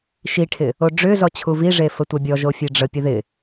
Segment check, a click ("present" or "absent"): absent